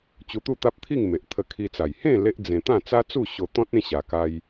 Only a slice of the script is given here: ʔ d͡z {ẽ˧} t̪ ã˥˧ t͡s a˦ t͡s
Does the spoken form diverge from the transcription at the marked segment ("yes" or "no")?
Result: no